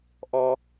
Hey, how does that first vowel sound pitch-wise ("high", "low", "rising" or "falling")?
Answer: high